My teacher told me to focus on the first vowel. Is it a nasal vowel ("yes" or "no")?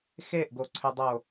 no